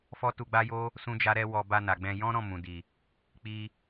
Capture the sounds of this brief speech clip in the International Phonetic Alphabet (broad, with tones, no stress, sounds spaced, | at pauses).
f ɔ˦ t u˧ ɡ͡b a˦ j o˦ | s ũ˦ d͡ʒ a˦ ɾ ɛ˦ w ɔ˧ b a˧ n a˨ ɡ͡b ɛ̃˧ j ɔ̃˦ ɾ ɔ̃˦˨ m ũ˨ d i˨ | k͡p i˧